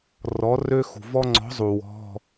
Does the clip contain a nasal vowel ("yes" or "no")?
no